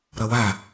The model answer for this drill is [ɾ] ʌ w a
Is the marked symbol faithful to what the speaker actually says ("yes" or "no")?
yes